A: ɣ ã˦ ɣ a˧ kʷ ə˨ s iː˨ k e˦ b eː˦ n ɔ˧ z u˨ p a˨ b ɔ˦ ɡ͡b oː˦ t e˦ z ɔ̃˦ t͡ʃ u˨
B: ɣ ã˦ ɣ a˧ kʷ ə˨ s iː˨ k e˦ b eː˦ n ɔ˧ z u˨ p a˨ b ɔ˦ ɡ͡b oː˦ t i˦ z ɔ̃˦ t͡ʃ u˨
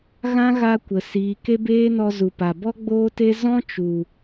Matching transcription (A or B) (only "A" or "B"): A